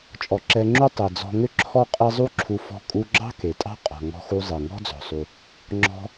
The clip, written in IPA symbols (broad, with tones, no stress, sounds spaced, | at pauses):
t͡ʃʼ ɔ˩ ǁ ɛ˧ ŋ͡ǁ u˥ tˤ e˩ d͡z ɔ̤˧ ŋ ʏ˥ ǁʰ ɔ˥ qʼ e˥ zˤ u˥ ǁʰ u˧ f ɔ̤˧ kʼ u˧ ɡ͡ǁ ɑ̤˥ k e˩ tʼ ɑ̤˥ qʼ ɔ̤˩ ŋ ɔ̤˧ x u˧ zˤ e˩ ŋ ɔ̤˥ d͡z ɔ̤˩ sˤ u˩ | ŋ͡ǁ ɔ̤˧